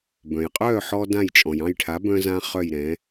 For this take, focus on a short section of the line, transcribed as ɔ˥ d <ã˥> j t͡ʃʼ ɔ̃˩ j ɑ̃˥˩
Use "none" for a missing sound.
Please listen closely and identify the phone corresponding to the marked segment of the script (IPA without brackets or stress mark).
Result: ã˥˩